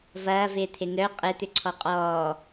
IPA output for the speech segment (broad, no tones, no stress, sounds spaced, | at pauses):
v ɐː v ɪː t̪ʰ ɪ n œ qʼ e t̪ ʏ ǀʰ ɔ qʼ ɔː